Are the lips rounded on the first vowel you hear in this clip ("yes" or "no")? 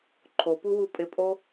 yes